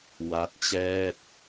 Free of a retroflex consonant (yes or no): yes